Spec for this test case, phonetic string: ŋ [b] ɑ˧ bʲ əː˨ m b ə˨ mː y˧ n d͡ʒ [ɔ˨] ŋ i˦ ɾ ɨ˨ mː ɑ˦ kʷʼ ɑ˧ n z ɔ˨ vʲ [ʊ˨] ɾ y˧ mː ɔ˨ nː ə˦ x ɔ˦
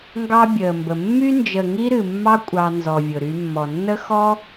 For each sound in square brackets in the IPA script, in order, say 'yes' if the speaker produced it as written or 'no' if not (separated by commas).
no, no, yes